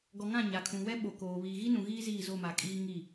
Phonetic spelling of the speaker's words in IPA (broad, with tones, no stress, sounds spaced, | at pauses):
ɡ ɔ˨ ŋ ã˦˨ ɲ a˨ kʰ ũ˨ w ɛ˦ ɓ o˨ k oː˨ β iː˨ ɣ i˦ n ũ˨ ɣ iː˦ z iː˦˨ z o˦˨ m a˨ kʼ iː˦ ŋ i˦˨